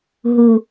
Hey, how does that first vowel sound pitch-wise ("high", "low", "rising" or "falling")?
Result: high